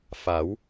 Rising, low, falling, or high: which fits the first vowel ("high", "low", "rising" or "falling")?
rising